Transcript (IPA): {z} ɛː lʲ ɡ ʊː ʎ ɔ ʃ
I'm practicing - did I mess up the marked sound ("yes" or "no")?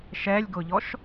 yes